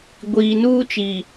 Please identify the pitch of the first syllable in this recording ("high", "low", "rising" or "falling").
low